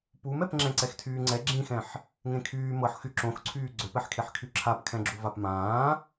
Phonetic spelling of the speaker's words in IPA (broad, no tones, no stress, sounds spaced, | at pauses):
p u m ɛ p ŋ͡ǁ ɛ̃ ǀ ɛ x tʰ yː ŋ͡ǀ ɛ ɡ͡ǁ ĩ x ɛ̃ ħ | ŋ ẽ kʰ yː m ɤ ħ x y ǁ õ x ǀʰ yː ɡ͡ǀ ø p ɛ ħ kʰ e ħ kʰ y ǁʰ a p kʰ ɛ̃ ɡ͡ǁ u v a p m ãː